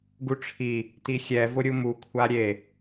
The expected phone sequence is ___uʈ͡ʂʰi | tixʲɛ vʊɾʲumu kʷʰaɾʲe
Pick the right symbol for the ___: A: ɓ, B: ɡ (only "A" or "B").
B